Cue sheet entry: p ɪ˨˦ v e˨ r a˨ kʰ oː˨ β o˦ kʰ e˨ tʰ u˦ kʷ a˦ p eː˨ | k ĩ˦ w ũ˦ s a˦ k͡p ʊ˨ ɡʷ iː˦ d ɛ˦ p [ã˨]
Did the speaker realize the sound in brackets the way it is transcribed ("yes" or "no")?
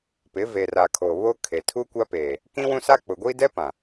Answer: yes